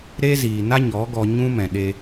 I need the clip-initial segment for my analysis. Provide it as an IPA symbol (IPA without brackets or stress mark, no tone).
ɾ